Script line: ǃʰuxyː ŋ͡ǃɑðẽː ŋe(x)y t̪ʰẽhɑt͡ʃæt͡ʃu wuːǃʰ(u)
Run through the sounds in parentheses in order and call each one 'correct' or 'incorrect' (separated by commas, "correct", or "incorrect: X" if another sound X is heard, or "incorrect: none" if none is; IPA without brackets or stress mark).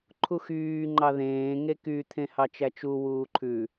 incorrect: k, incorrect: ʉ